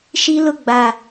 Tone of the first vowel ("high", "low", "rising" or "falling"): high